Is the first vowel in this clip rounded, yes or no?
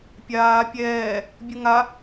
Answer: no